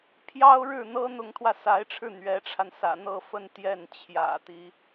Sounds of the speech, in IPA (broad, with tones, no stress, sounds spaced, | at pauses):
pʰ j ɑ˥ ʊ̯ ɻ ɻ̩˥˩ n̪ ɤ˥ n̪ ʊ˧˥ ŋ t̪ʰ w ä˧ s a˧˥ ɪ̯ ʈ͡ʂʰ ɻ̩˥˩ n̪ ɥ ɛ˧˥ ʈ͡ʂʰ a˧ n s ä̰˨˩ n̪ ɤ˥˧ f ə˥˧ n t̪ j ɛ˥˩ n t͡ɕʰ j ä̰˨˩ t̪ i˧˥